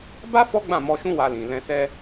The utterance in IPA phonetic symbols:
ba˦ fɔ˦ɡ͡bã˦˨mɔ˧ʃũ˦ wa˧lĩ˨ lɛ̃˧sɛ˦

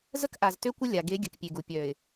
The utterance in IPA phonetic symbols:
zə˦kʔa˨z tø˦kʷə˦ lʲa˨ ɡe˨˦ ɡʲə˨kpʲe˨ɡu˨ pʲœ˨ɪ̯

